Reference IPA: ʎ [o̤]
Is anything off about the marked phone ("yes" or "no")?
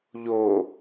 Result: yes